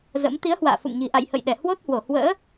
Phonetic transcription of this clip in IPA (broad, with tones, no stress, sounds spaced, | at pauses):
z ə̰˧˥ m t̪ i˨˦ ə̯ h w a̰ː˧˨ f ṵ˧˨ ŋ ɲ i̤˨˩ ʔ a̰˧˨ j h ə̰˧˨ j ɗ ɛ˧˩ h w o˦˥ t̚ h w o˧˩ h w ə̰ː˧˥